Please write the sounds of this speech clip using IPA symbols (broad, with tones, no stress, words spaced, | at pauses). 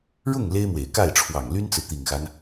ɻʊ˥˩ŋ le˥ɪ̯mwe˨˩ɪ̯ ka˥˩ɪ̯ʈ͡ʂʰwɑ˨˩ŋly˥nt͡sɹ̩˨ t̪i˨˩ŋxa˦n